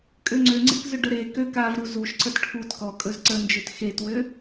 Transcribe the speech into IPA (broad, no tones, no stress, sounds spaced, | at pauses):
kʼ ø ŋ͡ǀ ø ŋ͡ǀ ḛ k z ɵ ɖ ə ɾ e k ø k a v ɾ u z u ʃ ǀ ə d ʈʰ u t k ɔ kʼ ɵ z ǀ ə n d͡ʒ ø t x e t w ø